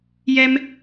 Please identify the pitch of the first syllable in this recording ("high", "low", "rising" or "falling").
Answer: high